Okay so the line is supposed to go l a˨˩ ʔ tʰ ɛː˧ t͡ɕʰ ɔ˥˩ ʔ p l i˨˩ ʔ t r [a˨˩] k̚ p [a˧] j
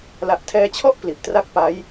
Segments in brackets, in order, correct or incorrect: incorrect: a˥˩, incorrect: a˦˥

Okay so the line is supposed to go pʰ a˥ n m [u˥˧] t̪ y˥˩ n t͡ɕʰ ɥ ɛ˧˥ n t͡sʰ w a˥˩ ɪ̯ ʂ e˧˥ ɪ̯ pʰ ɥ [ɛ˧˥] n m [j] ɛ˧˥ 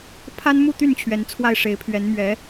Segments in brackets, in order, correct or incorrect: correct, correct, incorrect: ɥ

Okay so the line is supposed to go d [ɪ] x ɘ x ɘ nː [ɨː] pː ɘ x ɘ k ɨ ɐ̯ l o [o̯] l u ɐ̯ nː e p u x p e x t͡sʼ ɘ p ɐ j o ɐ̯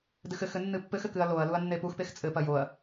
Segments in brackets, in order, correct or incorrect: incorrect: ɨ, incorrect: ɨ, incorrect: ɐ̯

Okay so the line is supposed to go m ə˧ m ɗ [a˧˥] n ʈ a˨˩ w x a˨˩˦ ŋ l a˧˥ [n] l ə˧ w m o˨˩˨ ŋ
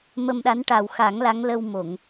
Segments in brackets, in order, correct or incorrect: correct, incorrect: ŋ

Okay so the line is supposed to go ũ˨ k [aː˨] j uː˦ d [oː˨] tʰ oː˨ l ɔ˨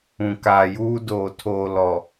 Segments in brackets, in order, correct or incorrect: correct, correct

